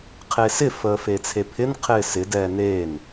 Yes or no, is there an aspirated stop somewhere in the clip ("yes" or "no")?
yes